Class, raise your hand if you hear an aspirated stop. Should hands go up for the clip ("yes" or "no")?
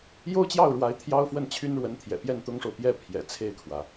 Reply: yes